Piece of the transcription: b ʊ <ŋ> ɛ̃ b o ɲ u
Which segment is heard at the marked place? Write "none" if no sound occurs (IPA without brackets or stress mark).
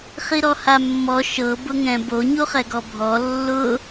ŋ